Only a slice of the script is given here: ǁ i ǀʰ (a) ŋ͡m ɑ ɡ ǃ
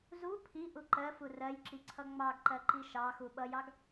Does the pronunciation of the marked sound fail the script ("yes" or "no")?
yes